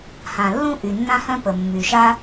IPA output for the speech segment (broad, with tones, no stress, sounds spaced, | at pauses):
h ã˩ lː ũ˥ ʔ y˩ nː ã˥ h œ̃˥ p ə˩ mː y˩ ʃ a˥